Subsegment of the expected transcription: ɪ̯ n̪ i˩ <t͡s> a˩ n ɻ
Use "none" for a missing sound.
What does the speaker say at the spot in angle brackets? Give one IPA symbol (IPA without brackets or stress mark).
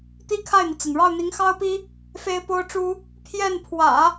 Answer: t͡s